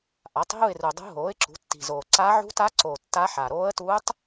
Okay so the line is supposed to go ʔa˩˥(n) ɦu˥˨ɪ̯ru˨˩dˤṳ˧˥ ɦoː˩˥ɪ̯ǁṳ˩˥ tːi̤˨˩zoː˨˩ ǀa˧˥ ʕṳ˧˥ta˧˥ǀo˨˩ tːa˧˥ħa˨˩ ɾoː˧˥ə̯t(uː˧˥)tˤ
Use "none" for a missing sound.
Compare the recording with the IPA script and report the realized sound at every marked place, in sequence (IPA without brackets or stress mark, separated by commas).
tˤ, uː˧˥